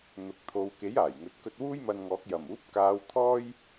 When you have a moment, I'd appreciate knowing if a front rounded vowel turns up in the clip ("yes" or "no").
no